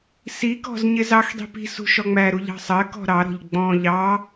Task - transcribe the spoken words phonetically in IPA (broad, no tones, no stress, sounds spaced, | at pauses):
s i k ɔ̤ z ɲ ɪ z ɑ x dˤ i̤ p i̤ s ṳ ʃ ɔ ŋ͡m æ ɾ u ʎ ɑ̤ sˤ ɜ k ɔ̤ ɾ ɑ ɾ ɔ̤ ʎ ɡ͡b ɔ̃ ʎ ɑ